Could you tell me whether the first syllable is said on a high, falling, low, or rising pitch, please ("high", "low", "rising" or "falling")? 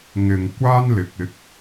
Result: low